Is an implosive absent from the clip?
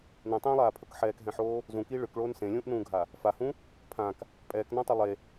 yes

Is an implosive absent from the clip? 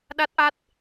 no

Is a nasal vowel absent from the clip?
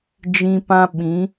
no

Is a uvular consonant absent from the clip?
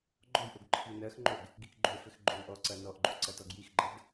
yes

